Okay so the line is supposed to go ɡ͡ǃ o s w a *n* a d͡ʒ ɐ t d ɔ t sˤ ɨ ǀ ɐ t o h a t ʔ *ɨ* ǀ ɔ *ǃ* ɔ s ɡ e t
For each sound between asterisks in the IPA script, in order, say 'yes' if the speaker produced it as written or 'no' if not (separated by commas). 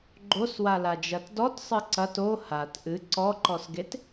no, yes, yes